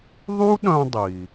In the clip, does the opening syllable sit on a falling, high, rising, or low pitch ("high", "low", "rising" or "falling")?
high